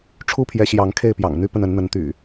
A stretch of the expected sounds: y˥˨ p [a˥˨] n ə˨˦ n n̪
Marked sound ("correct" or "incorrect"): incorrect